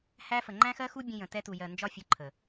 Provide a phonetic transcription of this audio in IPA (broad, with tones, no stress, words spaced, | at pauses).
hæ˦fə˨ ŋ͡ǃæ̃˦xɜ˦xu˦bʲə̃˧ jə̃˨ tɛ˧tu˨jɜ˨ nd͡ʒɒ˧fʲʊ˨˦ ǃʰə˨